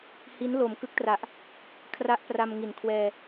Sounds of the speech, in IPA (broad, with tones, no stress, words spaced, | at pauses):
hi˦˥n lo˨˩mkɯ˦˥k̚tra˨˩ʔ | kʰra˦˥ʔpra˧m ŋi˨˩nkʰwɛː˧